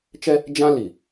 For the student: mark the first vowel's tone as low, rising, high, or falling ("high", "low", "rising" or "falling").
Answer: high